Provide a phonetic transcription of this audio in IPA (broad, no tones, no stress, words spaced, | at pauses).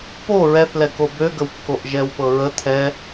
po ɹɛθlɛko bøɡəwkːoʔ ʒɛwpɤɹə t̪ʰɛ